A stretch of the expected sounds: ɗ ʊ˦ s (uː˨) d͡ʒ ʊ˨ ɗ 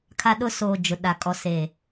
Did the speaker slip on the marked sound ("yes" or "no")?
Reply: yes